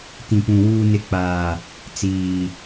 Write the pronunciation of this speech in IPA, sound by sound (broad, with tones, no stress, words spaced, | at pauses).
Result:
tĩ˨pũ˨ wuː˨nɪ˨˦k͡paː˨ | t͡siː˨